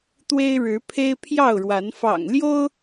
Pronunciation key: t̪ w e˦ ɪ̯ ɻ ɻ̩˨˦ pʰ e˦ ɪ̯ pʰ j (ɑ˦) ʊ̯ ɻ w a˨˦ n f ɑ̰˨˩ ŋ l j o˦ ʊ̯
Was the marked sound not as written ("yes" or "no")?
yes